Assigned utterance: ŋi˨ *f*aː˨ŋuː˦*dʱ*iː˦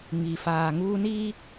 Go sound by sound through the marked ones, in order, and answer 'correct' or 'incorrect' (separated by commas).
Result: correct, incorrect